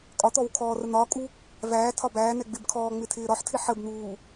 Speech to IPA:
kʼɒt̪ɔw kʰɔːrən̪ɒːkʼu | væːtʰɒ bæːn̪ɛ ɡ͡bɪbkʰɔː ŋ͡mɪtʰɪːɾɒħtʰɪ ħəbn̪uː

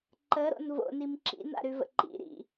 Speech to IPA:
ǃəɾo̰n vo̰nim ǁḭna̰ɾʉvə̰ ǃḭ ɾḭ

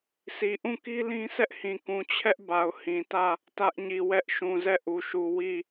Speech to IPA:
sʰi˨ʔũ˦˨ki˦lĩ˦ sɛ˦ʔhĩ˨ kũ˨t͡ɕʰɛ˦ʔ ba˨ʊ̯ hĩ˨tä˦˨ | tä˦ʔɲi˨ wɛ˦ʔ ʃũ˨zɛ˦˨ʔu˨ʃu˨ wi˦˨

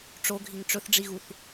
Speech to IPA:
ʈ͡ʂoɡʱiŋ ʈ͡ʂɵθɖ͡ʐiɣuθ

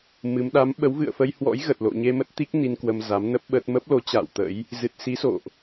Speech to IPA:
mɨ˨˦m ɗa˨˦mɓə˨˦wvɨ̰˧˨ə̯ fə˧jhwɔ̰˧˥jɣə˨˩t̚ lo̰˧˨ɲe˧mə˦˥t̚t̪i˦˥k̚ ni˧nkwə˧mza˨˦m nə˦˥p̚ ɓə˦˥t̚ mə˦˥p̚lo˨˦t͡ɕa̰ː˧˨w t̪ə̰˧˥j | zɨ˨˩t̚si˨˦so̰˧˨ʔ

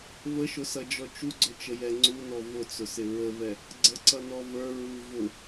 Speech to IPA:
vəʃʊsʌd͡ʒɔ t͡ʃuɡ͡ǀʊt͡ʃəjɛ ŋ͡ǀunɔ vʊt͡sʊsɪ ɹəvɛ | ɡ͡ǀəǀʌnɔ və˞ ɹu vʊ

